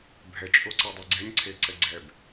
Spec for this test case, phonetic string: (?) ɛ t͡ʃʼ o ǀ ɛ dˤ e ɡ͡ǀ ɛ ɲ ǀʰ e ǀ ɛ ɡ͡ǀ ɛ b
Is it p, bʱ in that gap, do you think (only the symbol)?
bʱ